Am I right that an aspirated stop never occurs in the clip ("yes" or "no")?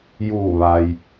yes